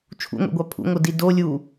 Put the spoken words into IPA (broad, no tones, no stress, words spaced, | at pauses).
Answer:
t͡ʃʰṵŋʷḛɡʷa pʰṵŋʷɤdi dolʲuː